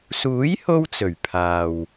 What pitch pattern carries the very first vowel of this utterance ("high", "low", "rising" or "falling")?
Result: rising